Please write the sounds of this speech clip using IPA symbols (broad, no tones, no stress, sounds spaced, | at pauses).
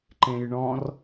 ǃ ẽ j ɳ ɔ̃ r